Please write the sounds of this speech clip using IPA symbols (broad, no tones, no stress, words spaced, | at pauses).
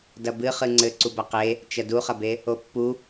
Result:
dɐbɨχɨ ŋ͡ǀɘ ǀubɐqe | t͡ʃɐduχɐbe | opːu